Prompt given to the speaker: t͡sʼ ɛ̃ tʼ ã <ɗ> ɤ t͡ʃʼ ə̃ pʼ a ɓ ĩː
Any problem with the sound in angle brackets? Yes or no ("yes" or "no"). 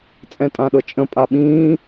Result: no